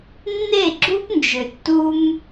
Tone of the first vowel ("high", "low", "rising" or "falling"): falling